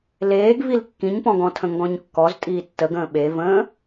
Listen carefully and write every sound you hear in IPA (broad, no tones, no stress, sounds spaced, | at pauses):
l eː ɡ v i l kː ĩ ɲ p ɔ̃ ɡ ɔ̃ tʰ ə̃ ŋ ɡ ɔ̃ ɲ kː ɔ z tʼ iː tː ə ɡ ə̃ː ɓ e v ə̃ː